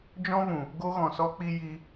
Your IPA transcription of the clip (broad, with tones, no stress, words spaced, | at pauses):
d͡ʒɔ̃˦vũ˨ | ɡo˦ɣɔ̃˨sɔ˦k͡pi˦ ji˦